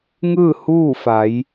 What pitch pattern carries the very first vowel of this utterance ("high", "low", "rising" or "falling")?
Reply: falling